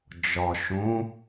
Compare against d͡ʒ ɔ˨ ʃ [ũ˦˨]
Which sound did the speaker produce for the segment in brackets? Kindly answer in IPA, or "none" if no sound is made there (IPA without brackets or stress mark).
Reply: ũ˨˦